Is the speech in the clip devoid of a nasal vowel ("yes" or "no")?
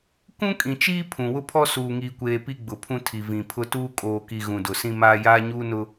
no